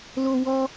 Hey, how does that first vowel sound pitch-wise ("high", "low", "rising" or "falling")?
high